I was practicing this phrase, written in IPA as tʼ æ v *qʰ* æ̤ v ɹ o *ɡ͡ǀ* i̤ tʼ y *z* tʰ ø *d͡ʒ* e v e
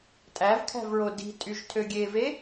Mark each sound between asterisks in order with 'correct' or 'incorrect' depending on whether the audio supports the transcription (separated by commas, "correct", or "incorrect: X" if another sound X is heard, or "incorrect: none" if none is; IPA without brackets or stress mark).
incorrect: kʰ, incorrect: d, incorrect: ʒ, incorrect: ɡʲ